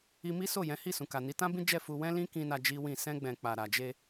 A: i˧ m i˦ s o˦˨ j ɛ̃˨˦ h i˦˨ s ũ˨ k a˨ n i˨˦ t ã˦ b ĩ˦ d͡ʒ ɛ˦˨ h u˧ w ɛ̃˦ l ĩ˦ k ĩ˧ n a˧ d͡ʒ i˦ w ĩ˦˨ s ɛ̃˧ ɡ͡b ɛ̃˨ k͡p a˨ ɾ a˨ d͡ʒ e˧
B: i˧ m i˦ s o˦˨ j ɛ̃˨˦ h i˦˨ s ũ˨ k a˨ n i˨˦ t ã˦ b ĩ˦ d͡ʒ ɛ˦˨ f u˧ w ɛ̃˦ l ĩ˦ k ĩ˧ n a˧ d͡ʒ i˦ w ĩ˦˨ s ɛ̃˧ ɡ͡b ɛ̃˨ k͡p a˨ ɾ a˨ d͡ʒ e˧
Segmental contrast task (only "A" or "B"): B